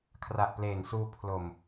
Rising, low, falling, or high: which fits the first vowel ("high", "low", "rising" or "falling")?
low